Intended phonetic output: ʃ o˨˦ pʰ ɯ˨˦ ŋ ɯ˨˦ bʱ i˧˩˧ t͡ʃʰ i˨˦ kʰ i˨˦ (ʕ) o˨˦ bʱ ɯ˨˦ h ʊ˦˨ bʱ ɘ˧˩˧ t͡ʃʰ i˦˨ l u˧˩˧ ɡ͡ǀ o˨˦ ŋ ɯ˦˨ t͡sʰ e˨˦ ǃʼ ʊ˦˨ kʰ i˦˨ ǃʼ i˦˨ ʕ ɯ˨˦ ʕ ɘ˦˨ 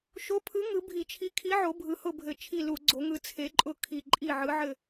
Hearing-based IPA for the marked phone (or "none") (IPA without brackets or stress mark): ʕ